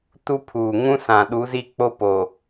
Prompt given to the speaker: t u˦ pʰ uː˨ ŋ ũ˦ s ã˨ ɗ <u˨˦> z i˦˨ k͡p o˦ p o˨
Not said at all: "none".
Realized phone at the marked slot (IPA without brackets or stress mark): u˨˦